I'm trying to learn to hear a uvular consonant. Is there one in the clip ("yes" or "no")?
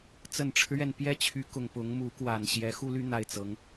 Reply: no